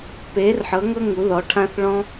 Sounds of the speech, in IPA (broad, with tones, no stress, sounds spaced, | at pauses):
p eː˨˥ r ħ ɤ˨˥ ŋ ɤ˥ ŋ u˨˥ ð ɔ˨˥ ʈʰ ã˥ θ ɭ ɔ̃˥